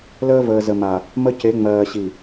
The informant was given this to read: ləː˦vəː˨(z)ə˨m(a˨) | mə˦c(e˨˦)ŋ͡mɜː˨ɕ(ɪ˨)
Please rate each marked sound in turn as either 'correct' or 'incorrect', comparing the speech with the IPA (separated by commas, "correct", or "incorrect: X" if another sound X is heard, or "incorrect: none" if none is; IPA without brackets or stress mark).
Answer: correct, correct, correct, incorrect: i˨